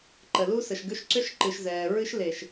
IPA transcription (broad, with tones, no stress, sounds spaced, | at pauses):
ǃ ə˨ l u˦ s ə˨ ʃ ɡ ʏ˦ ʃ ǀ ʏ˦ ʃ ǃ ɨ˨ ʃ z ɛː˨ ɹ ɨ˦ ʃ l e˨ ʃ